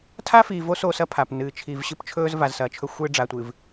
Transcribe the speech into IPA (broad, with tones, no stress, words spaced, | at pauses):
tʰa˦fiː˨vo˦ so˦sɐ˦pʰa˨p nɨː˨t͡ʃʰiː˨v ɕɨ˦pt͡ʃʰɵː˦z va˨zsɐː˨t͡ʃʰɵ˦ xʷɨː˦ ɖ͡ʐa˨tʷɨː˨v